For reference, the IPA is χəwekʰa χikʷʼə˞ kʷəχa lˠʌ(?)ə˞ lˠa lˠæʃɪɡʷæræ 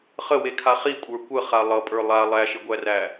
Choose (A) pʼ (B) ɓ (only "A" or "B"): A